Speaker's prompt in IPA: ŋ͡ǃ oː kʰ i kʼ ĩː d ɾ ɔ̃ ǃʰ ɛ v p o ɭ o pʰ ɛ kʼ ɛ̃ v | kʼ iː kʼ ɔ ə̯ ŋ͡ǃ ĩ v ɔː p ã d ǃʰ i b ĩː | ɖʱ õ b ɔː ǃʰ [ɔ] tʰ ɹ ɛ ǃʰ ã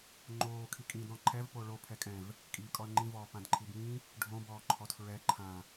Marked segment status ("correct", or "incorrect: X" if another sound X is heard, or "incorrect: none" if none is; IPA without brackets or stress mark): correct